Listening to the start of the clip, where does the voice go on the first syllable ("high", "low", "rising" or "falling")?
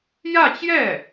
falling